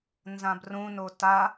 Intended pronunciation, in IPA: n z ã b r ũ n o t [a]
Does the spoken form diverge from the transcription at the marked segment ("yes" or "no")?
no